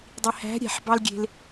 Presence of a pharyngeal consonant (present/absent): present